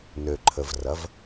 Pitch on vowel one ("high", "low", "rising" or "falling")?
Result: low